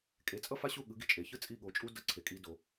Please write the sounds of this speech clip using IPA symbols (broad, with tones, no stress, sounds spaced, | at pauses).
kʼ e˩˥ t͡sʼ ʌ˥ f a˥ ɕ u˥˩ ɠ ɯ˩˥ ɡ i˩ t͡ʃʼ e˩ ç ɯ˥ t͡sʼ i˥˩ ɠ o˩˥ t͡ʃʼ u˥ d ʌ˧ ǀʰ e˩ kʼ i˧ d o˩